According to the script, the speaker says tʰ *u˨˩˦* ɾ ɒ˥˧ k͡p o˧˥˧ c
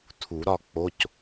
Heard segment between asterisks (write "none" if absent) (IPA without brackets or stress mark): u˨˩˦